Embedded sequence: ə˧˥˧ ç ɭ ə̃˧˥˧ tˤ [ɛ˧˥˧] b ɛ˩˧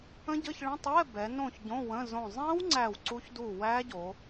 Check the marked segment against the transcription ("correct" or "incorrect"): correct